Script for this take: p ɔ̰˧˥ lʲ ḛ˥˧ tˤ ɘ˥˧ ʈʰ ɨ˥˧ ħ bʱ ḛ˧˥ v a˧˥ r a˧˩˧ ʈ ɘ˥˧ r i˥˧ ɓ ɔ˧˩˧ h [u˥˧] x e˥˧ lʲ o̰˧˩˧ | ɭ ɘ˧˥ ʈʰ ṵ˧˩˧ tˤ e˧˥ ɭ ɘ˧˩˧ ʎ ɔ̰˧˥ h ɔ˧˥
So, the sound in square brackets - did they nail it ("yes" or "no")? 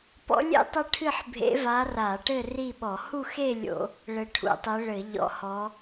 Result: yes